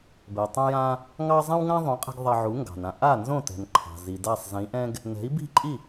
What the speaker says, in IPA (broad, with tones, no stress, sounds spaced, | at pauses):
b ɛ˩ tˤ õ˧ j ã˧ | ŋ ɑ˧ zˤ ɛ̃˥ w ŋ ã˥ ðˤ õ˩˥ qʼ ɛ̤˧ ɡ ðˤ ɐ˧ ʕ u˩˥ ŋ ɡ ɑ̤˩ n ã˧ ʔ a˥˩ n z õ˥˩ t ɛ̤˩ n ǃʰ ɑ̤˩ z i˩ d a˥˩ sˤ z ĩ˩˥ ʔ ɛ̃˥ ɡ | n ɛ̤˩˥ i̯ b i̤˥˩ ǃʼ i˥˩